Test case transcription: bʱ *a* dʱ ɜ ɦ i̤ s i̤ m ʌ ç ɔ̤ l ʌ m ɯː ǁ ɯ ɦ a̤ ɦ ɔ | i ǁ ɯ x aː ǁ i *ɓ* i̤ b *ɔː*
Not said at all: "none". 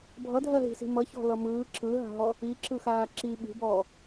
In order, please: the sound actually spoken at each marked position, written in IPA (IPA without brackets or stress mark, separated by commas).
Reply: ʌ, ɓ, ɔː